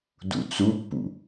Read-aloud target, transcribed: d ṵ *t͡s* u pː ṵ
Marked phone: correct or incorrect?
correct